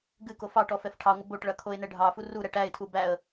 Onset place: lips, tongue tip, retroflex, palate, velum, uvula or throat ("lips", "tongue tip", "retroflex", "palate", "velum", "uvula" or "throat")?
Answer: velum